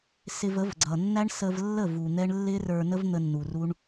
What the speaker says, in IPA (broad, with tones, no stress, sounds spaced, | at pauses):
s ɪ˧ v ə˨˦ v ɡ͡ǀ ʌ˨ nː æ˦ ɳ s ə˧ v lː ə˦˨ v u˨ n̪ ɛ˦ ɳ lː ɪ˦ r ə˞˧ n ə˦ v n̪ ə˧ nː u˨ r u˦ ɳ